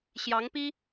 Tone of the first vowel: rising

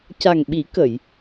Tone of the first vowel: low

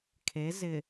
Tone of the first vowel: rising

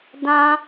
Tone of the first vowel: high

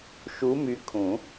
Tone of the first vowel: rising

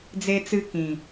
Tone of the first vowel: high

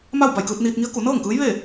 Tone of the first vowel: falling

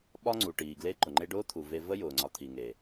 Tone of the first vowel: high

